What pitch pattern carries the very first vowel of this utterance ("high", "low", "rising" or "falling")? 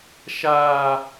high